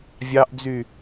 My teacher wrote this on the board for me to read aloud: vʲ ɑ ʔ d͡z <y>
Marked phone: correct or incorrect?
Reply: correct